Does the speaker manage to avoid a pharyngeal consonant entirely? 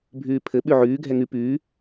no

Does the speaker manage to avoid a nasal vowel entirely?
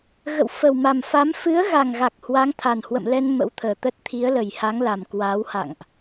yes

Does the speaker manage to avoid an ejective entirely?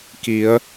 yes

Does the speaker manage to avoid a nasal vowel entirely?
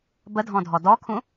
no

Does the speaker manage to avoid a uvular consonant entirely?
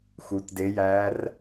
yes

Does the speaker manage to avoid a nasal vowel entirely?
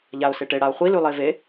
yes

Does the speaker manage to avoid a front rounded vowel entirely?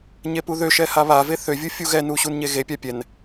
no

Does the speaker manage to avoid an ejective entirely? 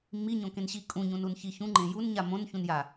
no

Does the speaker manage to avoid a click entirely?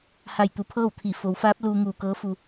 yes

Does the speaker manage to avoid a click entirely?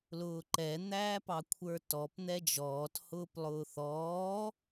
no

